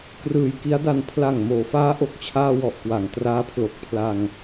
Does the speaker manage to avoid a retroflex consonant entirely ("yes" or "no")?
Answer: yes